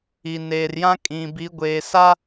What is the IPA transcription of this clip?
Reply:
i˨neː˨rjã˦ kʼĩ˨bi˨˦ɡʷeː˨sa˦

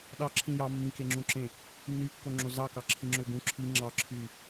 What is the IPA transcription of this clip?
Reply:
ɗɑǁʰĩ jɑ mːĩkeŋ͡ǁũǁẽ | nːykːoŋ͡ǁo zɑkɑǁʰĩŋ͡ǁø ɡũ ǁʰi ŋ͡ǁɑǁʰy

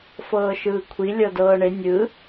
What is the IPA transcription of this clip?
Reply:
fɤːʃɯːkʷʰi lʲɤdɤːɳe nʲɯ

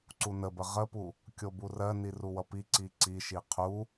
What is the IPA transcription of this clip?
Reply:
ǀunəbə ʁəpu | kʲoburɜni ruwʌpiǀi ǀiʃi qʰu

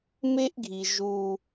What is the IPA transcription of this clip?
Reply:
me˦ʔɡʱi˨ ʒu˦

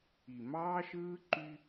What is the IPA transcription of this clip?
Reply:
i˨mɑː˦ʃɯː˦ǃy˦

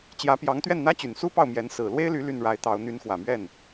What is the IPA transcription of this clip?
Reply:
t͡ɕjä˧˥pjɑ˧˥ŋt̪ɥɛ˥˩n n̪ä˥t͡ɕy˨˩nsu˥ pɑ˥˩ʊ̯mjɛ˧˥n sɹ̩˨˩lwe˥ɪ̯ly˧˥ ly˥˩nɻa˧˥ɪ̯t̪ɑ˧˥ʊ̯ n̪y˧˥nxwä˨˩mɥɛ˥˩n

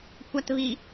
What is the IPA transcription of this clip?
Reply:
kʷatβi

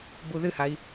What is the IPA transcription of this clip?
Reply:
buðɨhai̯

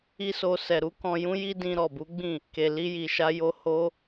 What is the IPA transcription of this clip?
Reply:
i˦so˧ sɛ˨ɾu˨˦ kɔ̃˧jũ˦ji˦dĩ˧ ɾɔ˨bu˨˦ɡ͡bĩ˦˨ | ke˨ li˧ji˨ʃa˧jo˧ ho˦

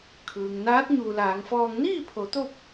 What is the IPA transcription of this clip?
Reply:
kʰɯː˩ŋ naː˧˥t̚ ɲuː˩laː˩˧ŋfɔː˧ŋ niː˥˨pʰo˩˧t̪o˧p̚

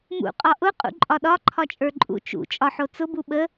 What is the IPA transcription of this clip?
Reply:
mṵ qʼɒʔʊ qʼṵǃʼɒɗɒ ǃʰɒt͡ʃʼə˞ǃʼṵ t͡ʃṵ t͡ʃʼɒħot͡sʊ buɓə

